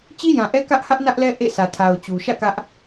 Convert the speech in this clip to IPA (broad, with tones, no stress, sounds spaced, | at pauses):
t͡ɕ i˦ j ã˨ ʔ ɛ˦ k ä˦ ʔ h ä˦ ʔ n ä˦ ʔ l ɛ˦ ʔ ḛ˦˨ s ä˨ tʰ a˨ ʊ̯ t͡ɕ u˨ ʃ ä̰˦˨ k ä˦ ʔ